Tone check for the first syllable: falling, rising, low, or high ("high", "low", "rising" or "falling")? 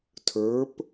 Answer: rising